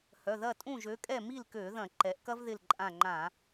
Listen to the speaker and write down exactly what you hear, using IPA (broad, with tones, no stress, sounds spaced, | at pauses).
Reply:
h œ˩˧˩ ð ɐ˥˨ tʼ ũ˥˨ ʒ ø˨˥ kʼ ɛ˥˨ m i˥˨ l k ø˧˩˧ ð ɐ̃˧˩˧ ǃ ɛ˩˧ ʔ k ɐ˥ v ð ɪ˥˨ l ǃʼ ã˥˨ ŋ͡ǃ ã˧˩˧